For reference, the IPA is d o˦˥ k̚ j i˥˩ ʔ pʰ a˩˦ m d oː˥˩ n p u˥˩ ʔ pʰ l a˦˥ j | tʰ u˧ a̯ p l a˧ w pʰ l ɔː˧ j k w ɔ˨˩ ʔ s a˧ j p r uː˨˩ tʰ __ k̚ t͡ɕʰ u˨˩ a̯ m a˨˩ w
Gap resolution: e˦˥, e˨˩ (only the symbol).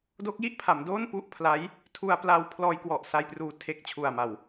e˨˩